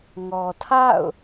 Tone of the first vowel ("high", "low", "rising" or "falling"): low